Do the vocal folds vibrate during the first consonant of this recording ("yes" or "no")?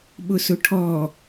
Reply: yes